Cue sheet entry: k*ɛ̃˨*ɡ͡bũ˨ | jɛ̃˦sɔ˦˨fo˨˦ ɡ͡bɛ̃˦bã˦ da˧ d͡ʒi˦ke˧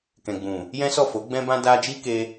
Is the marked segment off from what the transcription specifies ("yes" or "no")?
no